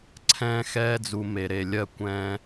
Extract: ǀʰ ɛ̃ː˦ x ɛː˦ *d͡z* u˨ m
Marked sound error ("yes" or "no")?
no